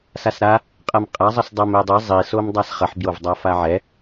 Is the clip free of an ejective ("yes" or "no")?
no